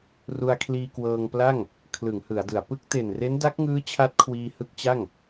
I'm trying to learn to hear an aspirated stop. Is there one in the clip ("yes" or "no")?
yes